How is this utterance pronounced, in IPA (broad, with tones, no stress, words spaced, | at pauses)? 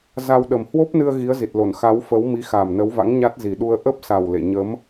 za˧w ɗə˨˩mhwo˦˥p̚nɨ˧ə̯ ɣi˨˦ə̯zi˨˩t̚lo˧˩n xa˨˦wfə˨˦wmi˨˦ xa˨˩mnə˨˦wva̰˧˥ŋ ɲa˦˥t̚zi˨˩ɗu˧ə̯ ʔə˦˥p̚sa˨˩w lḛ˧˨ ɲə˨˦m